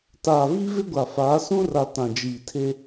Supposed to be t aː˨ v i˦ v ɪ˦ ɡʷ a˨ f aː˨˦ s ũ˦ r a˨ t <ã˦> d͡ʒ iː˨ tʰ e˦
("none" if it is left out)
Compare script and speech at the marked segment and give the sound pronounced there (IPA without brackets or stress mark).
ã˨